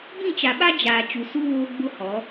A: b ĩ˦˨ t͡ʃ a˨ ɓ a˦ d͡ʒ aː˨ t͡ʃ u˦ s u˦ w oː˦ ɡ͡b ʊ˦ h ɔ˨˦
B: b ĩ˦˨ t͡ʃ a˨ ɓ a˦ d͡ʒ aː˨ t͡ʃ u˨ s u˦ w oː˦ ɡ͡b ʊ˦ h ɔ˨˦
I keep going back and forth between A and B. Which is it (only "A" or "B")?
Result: B